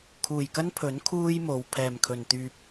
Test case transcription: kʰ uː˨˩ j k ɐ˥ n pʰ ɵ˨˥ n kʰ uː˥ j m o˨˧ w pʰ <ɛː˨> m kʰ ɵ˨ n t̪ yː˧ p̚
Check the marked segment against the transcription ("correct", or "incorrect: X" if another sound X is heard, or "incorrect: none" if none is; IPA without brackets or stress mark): correct